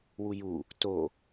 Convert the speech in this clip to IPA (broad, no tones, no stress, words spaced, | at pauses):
wuju | to